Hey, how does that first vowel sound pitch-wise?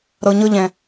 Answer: low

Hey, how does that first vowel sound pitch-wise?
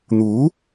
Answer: rising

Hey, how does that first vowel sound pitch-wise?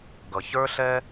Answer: low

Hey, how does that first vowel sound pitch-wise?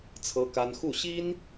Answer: high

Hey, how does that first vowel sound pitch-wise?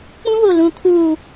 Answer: high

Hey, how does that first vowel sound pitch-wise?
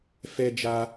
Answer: high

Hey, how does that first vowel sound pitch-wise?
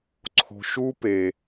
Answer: low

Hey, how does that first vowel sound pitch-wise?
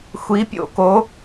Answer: rising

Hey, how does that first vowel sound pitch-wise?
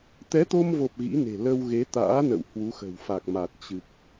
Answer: rising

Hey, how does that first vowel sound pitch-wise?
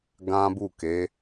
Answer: high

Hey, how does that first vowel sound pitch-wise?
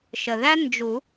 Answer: low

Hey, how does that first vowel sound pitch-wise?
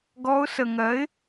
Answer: rising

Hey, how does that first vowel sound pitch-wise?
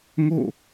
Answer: falling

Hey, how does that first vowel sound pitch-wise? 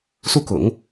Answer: falling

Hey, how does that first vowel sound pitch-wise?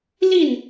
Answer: falling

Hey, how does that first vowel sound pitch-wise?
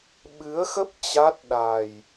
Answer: rising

